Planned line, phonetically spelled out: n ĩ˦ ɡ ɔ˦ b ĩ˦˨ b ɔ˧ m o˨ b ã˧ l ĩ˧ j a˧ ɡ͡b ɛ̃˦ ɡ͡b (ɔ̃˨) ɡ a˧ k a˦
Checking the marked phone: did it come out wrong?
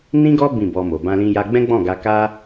yes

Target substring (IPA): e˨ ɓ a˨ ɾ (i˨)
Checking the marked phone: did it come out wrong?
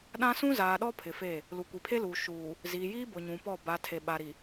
no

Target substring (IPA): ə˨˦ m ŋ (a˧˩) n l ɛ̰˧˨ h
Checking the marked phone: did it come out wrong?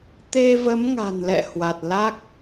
yes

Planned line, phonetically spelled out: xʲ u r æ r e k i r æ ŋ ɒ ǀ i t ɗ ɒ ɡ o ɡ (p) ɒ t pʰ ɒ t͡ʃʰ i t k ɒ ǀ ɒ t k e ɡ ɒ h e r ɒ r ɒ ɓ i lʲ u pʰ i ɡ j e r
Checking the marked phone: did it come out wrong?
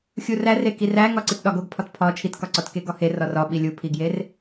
yes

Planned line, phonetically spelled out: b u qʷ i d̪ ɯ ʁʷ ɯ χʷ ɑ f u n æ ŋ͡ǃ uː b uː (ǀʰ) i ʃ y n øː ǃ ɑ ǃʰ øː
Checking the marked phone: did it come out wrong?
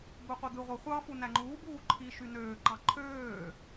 yes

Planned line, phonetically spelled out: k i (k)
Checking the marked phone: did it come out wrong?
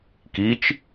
yes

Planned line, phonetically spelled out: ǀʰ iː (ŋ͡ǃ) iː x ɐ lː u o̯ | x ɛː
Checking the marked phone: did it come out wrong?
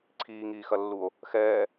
yes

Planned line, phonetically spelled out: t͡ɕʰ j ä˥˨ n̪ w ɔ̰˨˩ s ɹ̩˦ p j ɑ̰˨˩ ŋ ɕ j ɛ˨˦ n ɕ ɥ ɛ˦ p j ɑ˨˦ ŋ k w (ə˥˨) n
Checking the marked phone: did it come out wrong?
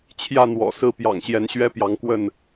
no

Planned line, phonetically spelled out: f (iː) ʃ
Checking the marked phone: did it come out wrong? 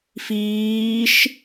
no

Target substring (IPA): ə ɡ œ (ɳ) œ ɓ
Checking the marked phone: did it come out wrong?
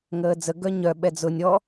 yes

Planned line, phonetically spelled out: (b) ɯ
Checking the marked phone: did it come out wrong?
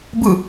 no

